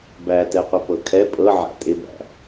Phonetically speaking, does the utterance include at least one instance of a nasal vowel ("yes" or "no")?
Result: no